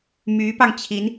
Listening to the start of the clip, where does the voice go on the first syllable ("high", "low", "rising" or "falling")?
rising